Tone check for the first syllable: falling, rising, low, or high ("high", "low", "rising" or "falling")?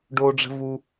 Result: high